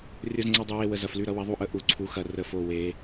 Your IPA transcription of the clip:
rʲo˨˩zŋ͡ǀɐ˨˩dˤɐ˨˩we˨˩ wə˨˩zɐ˨˩fly˨˩ɾʌ˩˧ wɐ˩˧ðˤu˨˩ʔə˨˩ ʔu˩˧ǀʰu˩˧xɐ˨˩ rə˨˩fo˨˩ we˩˧

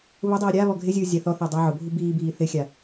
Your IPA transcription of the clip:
βʊdˤiː ɾʲa βɔɡʱɪzʲuː zʲaθɔθɪː dˤaʕʊbʱu biːbiː θɪxʲa

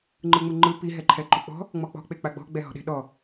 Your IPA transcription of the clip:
ŋ͡ǃɯŋ͡mɯŋ͡ǃɯ pi ɦɛǃʰɛǃuk͡pɔ̤ | ŋ͡mɔk͡pɔ̤ k͡pek͡paɡ͡bɔ̤ ɡ͡bɛɦɔ̤ɗe̤ɗɔ

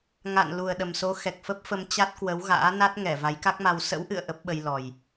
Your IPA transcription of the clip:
ŋa̰˧˨n lu˨˩ə̯ɗə˨˩mso˨˦ xɛ˨˩k̚fə˦˥p̚fə˧m t͡ɕa˦˥t̚kwə˨˦wɣa̰ː˧˥ na˦˥t̚ŋɛ˧˩ va˨˦jka˦˥k̚ma˧w sə̰˧˥wʔɨ̰˧˨ə̯ ʔə˦˥p̚ɓə˧jlɔ˨˩j

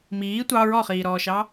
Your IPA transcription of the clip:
miː tʷɑ ɹɔχiːɾɔːʃɑ

